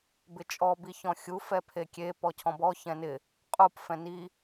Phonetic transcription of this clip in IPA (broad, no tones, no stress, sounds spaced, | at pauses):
b ɪ t͡ʃʼ ɔ b i ç ɔ̃ xʲ u f ɛ pʰ e kʲ e p ɔ cʰ ɔ̃ b ɔ ç ɛ̃ n ɪ | qʼ u p f ɛ̃ n i